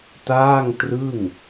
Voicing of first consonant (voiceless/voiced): voiceless